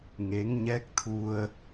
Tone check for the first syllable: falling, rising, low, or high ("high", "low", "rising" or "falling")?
rising